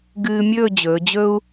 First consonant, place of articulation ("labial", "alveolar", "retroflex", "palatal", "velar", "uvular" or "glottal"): velar